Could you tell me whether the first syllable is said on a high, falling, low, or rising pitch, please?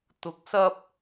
rising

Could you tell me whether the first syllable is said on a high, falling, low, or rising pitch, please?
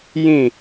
falling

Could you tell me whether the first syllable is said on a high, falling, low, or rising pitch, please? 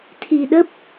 low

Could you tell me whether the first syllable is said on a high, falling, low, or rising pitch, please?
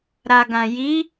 low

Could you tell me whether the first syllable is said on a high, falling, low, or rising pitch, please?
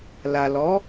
low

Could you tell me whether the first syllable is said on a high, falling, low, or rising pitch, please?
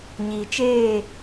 low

